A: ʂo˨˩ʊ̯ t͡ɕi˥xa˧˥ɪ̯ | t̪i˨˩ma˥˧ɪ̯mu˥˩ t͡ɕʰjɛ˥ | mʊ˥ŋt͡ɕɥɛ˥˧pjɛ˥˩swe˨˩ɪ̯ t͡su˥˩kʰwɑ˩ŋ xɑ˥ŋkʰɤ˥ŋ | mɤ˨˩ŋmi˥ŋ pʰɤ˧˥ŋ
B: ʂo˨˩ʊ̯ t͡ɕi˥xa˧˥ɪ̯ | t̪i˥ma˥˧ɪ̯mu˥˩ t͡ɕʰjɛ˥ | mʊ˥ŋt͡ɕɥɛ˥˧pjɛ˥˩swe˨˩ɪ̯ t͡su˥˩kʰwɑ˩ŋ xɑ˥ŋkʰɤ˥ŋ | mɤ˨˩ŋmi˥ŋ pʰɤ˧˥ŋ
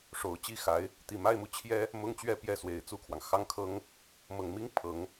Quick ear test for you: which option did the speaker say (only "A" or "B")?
A